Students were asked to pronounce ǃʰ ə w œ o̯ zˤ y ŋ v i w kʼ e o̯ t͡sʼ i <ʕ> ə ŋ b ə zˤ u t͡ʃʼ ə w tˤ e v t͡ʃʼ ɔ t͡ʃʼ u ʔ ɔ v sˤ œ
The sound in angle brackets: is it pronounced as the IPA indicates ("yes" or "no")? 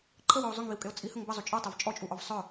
no